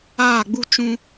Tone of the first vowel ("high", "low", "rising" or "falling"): falling